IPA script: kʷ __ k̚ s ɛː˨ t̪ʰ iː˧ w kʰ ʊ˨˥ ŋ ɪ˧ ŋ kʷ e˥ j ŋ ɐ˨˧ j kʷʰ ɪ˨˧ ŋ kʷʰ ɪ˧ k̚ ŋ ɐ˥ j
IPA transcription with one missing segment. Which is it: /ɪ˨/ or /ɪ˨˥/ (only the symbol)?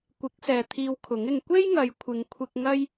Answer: ɪ˨˥